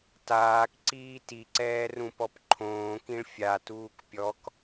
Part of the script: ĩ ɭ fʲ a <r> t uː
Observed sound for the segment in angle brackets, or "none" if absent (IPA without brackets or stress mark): none